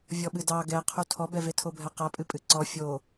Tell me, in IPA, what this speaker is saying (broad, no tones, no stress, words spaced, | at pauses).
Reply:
vʲɔɓɨdɑ ɡɛqʰu tʰɔbɛve tʰobʱɛqapʼɨ pʼɨǀɔ fʲo